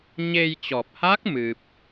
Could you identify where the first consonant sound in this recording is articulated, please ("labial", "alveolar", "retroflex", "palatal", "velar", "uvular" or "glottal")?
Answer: palatal